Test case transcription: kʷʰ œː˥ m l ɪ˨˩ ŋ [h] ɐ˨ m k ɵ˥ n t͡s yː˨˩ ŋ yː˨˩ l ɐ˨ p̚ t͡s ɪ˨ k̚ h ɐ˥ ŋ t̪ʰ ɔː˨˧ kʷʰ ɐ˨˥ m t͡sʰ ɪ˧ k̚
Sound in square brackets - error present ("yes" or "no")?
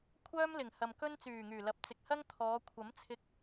no